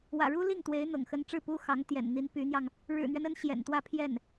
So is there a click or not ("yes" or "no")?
no